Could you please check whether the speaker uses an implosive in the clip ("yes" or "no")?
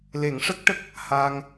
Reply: no